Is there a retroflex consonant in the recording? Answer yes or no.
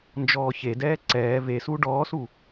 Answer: yes